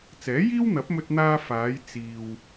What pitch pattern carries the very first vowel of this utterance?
rising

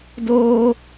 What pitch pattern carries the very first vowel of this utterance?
high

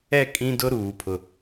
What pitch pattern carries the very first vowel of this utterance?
falling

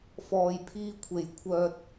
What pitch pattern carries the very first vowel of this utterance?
low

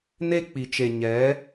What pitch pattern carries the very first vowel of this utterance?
high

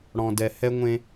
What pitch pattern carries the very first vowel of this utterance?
low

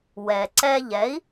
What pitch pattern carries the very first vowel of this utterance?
low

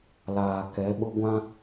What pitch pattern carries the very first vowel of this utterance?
low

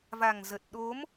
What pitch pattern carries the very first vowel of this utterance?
low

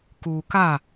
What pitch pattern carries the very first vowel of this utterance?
low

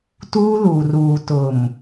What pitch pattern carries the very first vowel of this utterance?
high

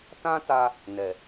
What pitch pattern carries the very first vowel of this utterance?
high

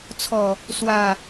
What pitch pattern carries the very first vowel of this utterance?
falling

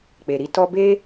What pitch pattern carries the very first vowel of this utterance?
low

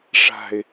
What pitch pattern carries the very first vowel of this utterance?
low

